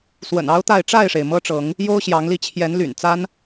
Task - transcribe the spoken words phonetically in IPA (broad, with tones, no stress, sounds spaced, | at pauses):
s w ə̰˨˩ n ɑ˦ ʊ̯ t̪ a˥˨ ɪ̯ ʈ͡ʂ a˥˨ ɪ̯ ʂ e˩ ɪ̯ m ɤ˦ ʈ͡ʂ ɤ˨˦ ŋ | j o˦ ʊ̯ ɕ j ɑ˨˦ ŋ l i˥˨ t͡ɕʰ j ɛ˨˦ n l y̰˨˩ n t͡s a˦ n